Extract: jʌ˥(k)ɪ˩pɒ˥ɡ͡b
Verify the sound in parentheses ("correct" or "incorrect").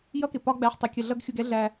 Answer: correct